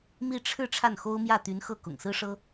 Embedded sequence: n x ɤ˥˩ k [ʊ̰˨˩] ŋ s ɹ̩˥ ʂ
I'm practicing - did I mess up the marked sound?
no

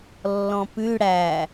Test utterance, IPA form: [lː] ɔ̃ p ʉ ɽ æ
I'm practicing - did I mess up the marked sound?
no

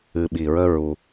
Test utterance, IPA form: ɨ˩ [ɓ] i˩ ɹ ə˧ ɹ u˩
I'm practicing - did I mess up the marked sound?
no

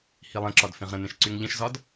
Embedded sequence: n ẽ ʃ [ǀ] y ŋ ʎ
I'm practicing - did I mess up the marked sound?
no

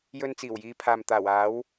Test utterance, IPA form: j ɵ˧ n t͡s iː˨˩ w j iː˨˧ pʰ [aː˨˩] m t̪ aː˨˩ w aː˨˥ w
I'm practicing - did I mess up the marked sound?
yes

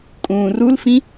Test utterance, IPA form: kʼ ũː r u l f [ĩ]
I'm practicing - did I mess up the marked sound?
no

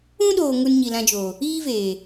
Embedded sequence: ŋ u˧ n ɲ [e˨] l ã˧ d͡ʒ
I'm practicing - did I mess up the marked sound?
yes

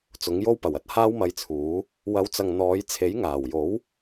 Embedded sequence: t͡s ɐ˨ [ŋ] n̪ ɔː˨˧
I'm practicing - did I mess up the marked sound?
no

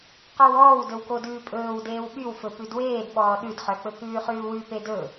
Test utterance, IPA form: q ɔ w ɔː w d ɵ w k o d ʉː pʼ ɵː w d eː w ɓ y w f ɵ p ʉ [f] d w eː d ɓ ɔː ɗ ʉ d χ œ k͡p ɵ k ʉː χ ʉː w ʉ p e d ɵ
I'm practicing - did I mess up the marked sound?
yes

